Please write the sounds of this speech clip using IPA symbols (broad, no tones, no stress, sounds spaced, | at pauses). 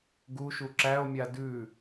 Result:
ɡ u ʃ u ǁ æ o̯ mʲ a d ʉ